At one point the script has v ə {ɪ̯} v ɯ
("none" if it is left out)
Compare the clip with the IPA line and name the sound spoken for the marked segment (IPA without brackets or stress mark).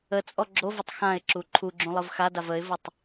ɪ̯